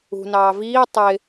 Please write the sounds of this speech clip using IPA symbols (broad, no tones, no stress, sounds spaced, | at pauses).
ṳ n ɑː v iː tˤ ɪ